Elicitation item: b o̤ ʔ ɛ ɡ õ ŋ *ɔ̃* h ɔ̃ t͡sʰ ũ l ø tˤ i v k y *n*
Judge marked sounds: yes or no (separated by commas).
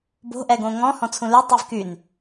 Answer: yes, yes